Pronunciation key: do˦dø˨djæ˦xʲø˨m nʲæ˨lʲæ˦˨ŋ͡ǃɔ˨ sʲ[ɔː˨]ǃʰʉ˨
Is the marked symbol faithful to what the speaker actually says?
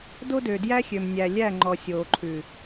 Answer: no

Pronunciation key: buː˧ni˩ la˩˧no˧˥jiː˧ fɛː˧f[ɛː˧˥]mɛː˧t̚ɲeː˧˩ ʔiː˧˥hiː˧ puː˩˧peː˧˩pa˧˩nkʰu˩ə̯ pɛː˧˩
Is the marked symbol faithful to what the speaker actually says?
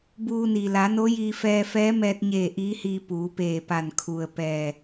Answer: yes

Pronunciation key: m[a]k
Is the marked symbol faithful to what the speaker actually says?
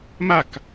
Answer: yes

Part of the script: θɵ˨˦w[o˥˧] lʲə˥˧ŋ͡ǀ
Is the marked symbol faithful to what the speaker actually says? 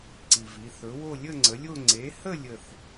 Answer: yes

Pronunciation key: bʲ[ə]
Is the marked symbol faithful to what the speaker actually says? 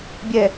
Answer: no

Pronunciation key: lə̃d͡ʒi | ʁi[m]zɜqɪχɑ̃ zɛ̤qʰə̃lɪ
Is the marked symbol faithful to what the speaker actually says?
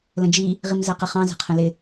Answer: yes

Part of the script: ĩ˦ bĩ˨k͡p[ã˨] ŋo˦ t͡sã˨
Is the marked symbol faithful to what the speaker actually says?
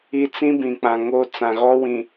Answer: yes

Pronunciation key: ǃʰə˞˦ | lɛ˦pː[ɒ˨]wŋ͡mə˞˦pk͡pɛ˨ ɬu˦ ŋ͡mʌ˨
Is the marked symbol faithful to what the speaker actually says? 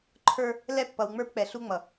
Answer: no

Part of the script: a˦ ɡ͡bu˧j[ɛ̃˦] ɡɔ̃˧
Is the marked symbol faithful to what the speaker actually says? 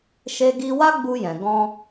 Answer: no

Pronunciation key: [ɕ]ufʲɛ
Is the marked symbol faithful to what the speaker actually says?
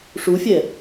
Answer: no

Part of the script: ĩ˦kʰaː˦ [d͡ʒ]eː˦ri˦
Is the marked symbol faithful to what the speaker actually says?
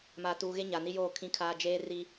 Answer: yes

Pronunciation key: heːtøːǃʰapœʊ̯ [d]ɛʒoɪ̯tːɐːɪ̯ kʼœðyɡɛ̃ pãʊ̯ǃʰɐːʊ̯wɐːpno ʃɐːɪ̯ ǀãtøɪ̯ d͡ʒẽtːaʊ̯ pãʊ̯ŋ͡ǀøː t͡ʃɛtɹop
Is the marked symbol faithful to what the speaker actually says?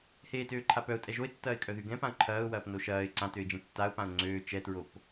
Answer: no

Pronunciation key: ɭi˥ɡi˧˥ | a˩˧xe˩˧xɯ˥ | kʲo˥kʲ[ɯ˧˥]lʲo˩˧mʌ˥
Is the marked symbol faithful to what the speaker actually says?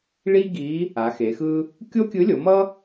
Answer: yes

